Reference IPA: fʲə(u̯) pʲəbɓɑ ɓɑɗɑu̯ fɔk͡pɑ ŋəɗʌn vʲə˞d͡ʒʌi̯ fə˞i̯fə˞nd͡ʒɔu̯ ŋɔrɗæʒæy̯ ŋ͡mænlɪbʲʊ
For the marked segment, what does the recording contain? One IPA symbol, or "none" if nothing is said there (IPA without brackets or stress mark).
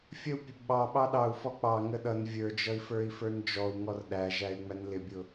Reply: u̯